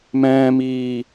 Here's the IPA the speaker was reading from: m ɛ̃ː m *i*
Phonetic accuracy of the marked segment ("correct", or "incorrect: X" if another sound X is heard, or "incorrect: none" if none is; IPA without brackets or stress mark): incorrect: iː